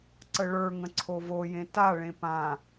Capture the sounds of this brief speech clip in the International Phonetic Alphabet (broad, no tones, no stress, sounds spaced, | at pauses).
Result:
ǀ ə ɭ ə˞ ŋ ə̃ ǀʰ o v o j ẽ t a ɭ ẽ p ã